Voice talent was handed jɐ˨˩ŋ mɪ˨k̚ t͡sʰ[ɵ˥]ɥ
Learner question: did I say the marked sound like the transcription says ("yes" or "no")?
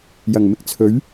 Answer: no